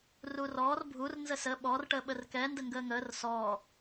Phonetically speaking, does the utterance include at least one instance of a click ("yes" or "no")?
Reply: no